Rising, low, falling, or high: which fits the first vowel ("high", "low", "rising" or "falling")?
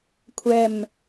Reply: low